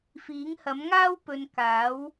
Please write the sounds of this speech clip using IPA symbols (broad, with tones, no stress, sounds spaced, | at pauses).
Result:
f iː˨˥ ŋ h ɐ˨˥ m ŋ aː˥ w p ɵ˨ n k aː˨˥ w